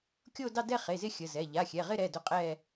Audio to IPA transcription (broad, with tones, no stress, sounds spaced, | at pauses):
kʲ o˥˧ d ɑ˥˧ d ɛ˥˧ χ e˩˧˩ z ɪ˥˧ xʲ ə˩˧˩ z ɛ˩˧˩ ʎ a˩˧˩ xʲ ɛ˩˧˩ ʁ ɪ˥˧ ɾ ɛ˩˧˩ d ɵ˥˧ qʼ ɛ˥˧